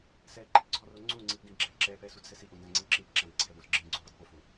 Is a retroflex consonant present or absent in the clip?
absent